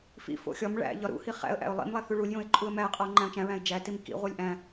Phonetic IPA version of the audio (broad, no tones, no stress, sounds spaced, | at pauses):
f ḭ f o̰ xʲ ɒ m ɭ æ̰ ʎ ɒ ɾ ṵ h i χ æ̰ ə̯ ʔ æ̰ ʊ̯ lˠ ḭ m lˠ æ θ u ɭ u lʲ j õ ɪ̯ ǃʼ u ə̯ m æ ə̯ qʼ ɒ ʊ̯ ŋ͡ǃ æ̃ ʊ̯ t͡ʃ æ̃ ɹ æ̃ ɪ̯ d͡ʒ æ t i m k ḭ ʁʷ i lʲ ʔ æ̃